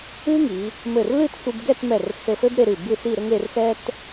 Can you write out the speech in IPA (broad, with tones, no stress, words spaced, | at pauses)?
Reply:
ɨ˥ŋi˩˧ | mɘ˧˩r lɨ˥˧tsʷi˧bɡɛ˥˧tmɛ˧˩r sɘ˧fɘ˥bɾe˧ɾɨ˧˩ bɨ˥˧si˥˧ɾɘ˥ŋ e˧rsɛ˥t